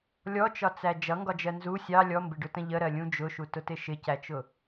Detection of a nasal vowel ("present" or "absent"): present